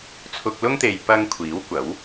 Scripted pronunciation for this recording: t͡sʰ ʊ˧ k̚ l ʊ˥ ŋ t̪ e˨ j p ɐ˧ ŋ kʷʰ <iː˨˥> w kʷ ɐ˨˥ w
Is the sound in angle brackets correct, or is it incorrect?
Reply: correct